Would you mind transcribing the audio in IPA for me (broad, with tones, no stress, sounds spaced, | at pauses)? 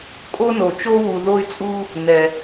kʼ o˦ n o˩ t͡ʃ o˦ w u˨ ð o˦ y̯ t͡sʼ u˦ | n ɛ˩